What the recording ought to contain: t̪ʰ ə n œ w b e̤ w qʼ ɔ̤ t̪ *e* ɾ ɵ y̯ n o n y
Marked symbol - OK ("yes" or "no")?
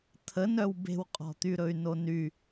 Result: no